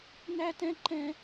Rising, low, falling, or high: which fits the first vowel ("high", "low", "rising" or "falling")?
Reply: high